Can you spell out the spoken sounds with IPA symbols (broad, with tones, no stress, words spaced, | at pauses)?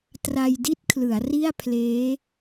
tra˧j di˦˥t̚kʰlɯ˩˦a̯ ri˥˩a̯ pʰleː˦˥